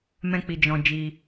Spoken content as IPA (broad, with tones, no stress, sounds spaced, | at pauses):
m ɛ̃˦ k͡p i˧ d͡ʒ ɔ̃˧ d͡ʒ i˧